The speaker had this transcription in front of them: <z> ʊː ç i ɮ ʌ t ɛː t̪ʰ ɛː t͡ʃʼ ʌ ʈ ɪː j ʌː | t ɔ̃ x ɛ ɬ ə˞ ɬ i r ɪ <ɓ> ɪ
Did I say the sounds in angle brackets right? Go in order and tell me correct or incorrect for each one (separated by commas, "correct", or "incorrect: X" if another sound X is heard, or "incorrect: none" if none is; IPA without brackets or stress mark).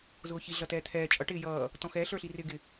correct, incorrect: ɡ